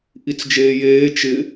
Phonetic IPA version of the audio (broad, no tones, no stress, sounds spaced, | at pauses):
ʔ i t͡s d͡ʒ eː j eː t͡ʃ ɪ